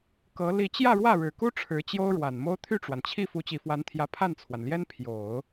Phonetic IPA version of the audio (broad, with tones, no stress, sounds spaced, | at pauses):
k ɤ˧˥ l i˧˥ t͡ɕ j ä˥˧ ɻ w ä˥˩ ɻ ɻ̩˨˩ k u˥ ʈ͡ʂʰ ɻ̩˧˥ t͡ɕ j o˥ ʊ̯ ɻ w a˨˩ n m o˥ ʊ̯ t̪ʰ y˥˩ ʈ͡ʂ w a˩ n t͡ɕʰ i˥˩ f u˧˥ t͡ɕ i˨˩ f w a˧˥ n t̪ʰ j ä˧˥ pʰ a˥˩ n t͡sʰ w a˩ n l j ɛ˥ n pʰ j o˨˩˦ ʊ̯